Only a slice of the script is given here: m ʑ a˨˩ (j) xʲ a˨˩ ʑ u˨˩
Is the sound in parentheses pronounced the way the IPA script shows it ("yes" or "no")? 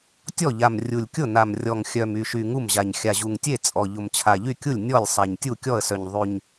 no